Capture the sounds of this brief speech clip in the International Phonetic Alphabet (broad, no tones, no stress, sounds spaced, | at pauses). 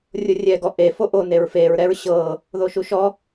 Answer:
rʲ o rʲ ɛ ɡ ɔ ʔ e f o ʔ o n e ɹ f e ɹ ɾ ɛ ɹ ɕ ɤ | ð o ʃ u ʃ ɔ